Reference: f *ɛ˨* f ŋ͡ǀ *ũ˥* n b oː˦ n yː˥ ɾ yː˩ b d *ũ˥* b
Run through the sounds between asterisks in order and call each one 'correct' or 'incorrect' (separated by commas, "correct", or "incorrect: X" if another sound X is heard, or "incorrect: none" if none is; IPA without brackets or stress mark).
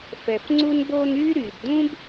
incorrect: ɛ˩, incorrect: u˥, correct